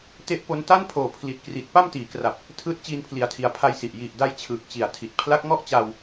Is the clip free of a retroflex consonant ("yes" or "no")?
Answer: yes